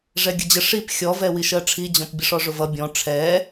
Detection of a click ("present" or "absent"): absent